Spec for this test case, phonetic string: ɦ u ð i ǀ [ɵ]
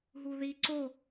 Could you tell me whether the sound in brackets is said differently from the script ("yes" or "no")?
yes